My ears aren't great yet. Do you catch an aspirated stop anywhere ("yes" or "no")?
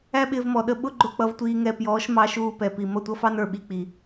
no